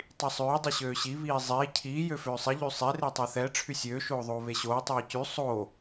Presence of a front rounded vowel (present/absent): present